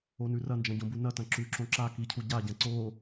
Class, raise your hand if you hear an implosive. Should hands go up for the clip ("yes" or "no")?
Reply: no